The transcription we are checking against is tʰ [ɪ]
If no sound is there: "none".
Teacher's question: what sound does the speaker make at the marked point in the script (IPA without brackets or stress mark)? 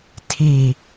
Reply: i